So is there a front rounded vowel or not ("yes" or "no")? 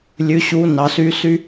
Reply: yes